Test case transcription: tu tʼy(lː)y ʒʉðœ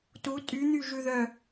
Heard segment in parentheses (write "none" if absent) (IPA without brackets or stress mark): n̪